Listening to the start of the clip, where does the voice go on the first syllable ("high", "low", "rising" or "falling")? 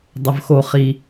low